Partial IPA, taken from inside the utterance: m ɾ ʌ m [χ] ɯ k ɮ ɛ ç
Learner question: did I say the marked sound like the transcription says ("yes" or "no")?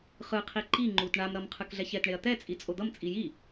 no